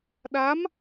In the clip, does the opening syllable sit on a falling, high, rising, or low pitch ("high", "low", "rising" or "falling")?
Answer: rising